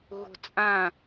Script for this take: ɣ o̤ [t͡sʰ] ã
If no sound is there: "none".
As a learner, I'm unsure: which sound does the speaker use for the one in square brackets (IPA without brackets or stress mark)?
t͡sʼ